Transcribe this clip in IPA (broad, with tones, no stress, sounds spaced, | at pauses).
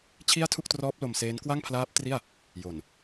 t͡ɕʰ i˥˩ a̯ tʰ u˥˩ k̚ t r ɔː˦˥ p̚ l o˧ m s eː˦˥ n k w a˥˩ ŋ pʰ l aː˦˥ p̚ t r i˥˩ a̯ | j o˨˩ n